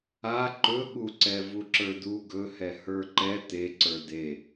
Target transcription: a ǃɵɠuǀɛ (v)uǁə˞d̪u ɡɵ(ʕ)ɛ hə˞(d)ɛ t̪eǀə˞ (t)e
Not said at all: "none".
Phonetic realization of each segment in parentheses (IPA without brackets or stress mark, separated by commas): v, h, ǃ, d̪